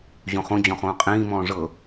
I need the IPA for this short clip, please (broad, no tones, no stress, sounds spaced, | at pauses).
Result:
ʑ õ χ õ d͡ʑ ɔ̃ χ õː qʼ ĩː m ɔ̃ː ʐ ɤ